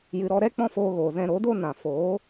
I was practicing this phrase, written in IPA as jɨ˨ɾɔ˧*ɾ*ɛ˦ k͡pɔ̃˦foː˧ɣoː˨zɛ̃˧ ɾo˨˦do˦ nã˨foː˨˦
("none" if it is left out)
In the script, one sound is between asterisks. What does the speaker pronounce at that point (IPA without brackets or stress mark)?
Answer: ɾ